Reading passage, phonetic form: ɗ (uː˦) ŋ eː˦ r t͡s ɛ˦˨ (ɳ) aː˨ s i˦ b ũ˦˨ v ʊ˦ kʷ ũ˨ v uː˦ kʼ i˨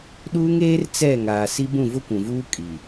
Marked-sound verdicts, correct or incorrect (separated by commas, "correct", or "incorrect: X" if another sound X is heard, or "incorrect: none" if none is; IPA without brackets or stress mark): correct, incorrect: ŋ